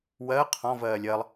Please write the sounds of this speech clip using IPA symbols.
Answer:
w ɜ qʰ ɔ̃ v ɜː lʲ ɜ lˠ

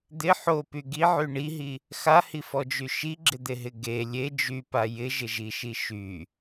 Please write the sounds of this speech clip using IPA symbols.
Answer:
d̪ ɪ ħ o p y ɡ i ʕ y ɳ i ɦ i | x a h i f ɔ d͡ʒ y ʃ i ɡ͡ǁ ɪ d̪ e ɦ ɪ ɡ e lʲ e d͡ʒ y p a j ɪ ʒ ɪ ʒ i ʃ i ʃ y

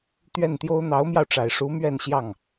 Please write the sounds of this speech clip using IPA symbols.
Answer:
t̪ ɥ ɛ˥˩ n t̪ j o˥ ʊ̯ n̪ ɑ˧˥ ʊ̯ m j ɑ˧ ʊ̯ ʈ͡ʂ a˨˩ ɪ̯ ʂ u˧˥ m ɥ ɛ˥˧ n ɕ j ɑ˥˩ ŋ

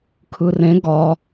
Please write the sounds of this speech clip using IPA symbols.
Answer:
kʰ ɯ r ẽ ɡ ɒ

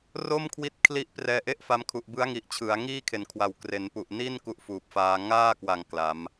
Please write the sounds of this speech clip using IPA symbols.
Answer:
r o˥˩ m kʰ w i˦˥ t̚ kʰ l i˦˥ ʔ p r ɛː˧ ʔ e˥˩ ʔ f a˧ m kʰ u˨˩ ʔ b ɯ˦˥ a̯ ŋ i˨˩ ʔ t͡ɕʰ ɯ˩˦ a̯ ŋ iː˥˩ kʰ e˨˩ n kʰ w a˨˩ w k r e˩˦ n p u˨˩ ʔ n i˥˩ n k u˦˥ ʔ f uː˨˩ p̚ f aː˧ ŋ aː˥˩ k w a˨˩ ŋ k l a˩˦ m

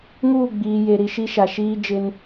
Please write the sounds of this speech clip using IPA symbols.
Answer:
ŋ uː˦˨ ɡ͡b iː˨ j e˨ ɾ i˨ ʃ i˦ ʃ a˨ ʃ iː˦ d͡ʒ ɪ˦ n

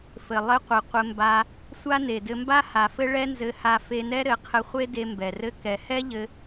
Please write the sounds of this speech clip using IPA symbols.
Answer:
f ɘ˨ lˠ ɘ˧ qʷ ɘ˨ qʷ ɘ˧ m b a˧ | sʷ a˦ n e˨ d ɘ˧ m b a˦ h a˨ f ɘ˦ ɭ ɛ˦ n z ɘ˧ h a˧ f e˧ n ɛ˦ ɾ ɘ˨˦ qʰ ɘ˧ χʷ e˦ d e˧ m b ɛ˨ r ɘ˦ k ɛ˨ h ɛ˦ ʎ ɘ˧

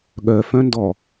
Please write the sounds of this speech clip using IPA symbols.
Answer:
ɠ œ f œ̃ n d ɔ

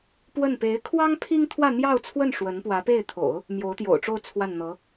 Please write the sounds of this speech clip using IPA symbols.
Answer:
p w ə˥˩ n p e˧˥ ɪ̯ kʰ w ɑ˥ ŋ pʰ i˥ ŋ t̪ʰ w ä˥˧ n̪ j ɑ˥˧ ʊ̯ t͡sʰ w ə˥˩ n ʂ w ə˧˥ n p w ä˧˥ p e˥˩ ɪ̯ t̪ʰ o̰˨˩˦ ʊ̯ | m j o˧˥ ʊ̯ t̪ j o̰˨˩ ʊ̯ ʈ͡ʂ o˥˧ ʊ̯ t͡sʰ w a˥˩ n n̪ ɤ˧˥

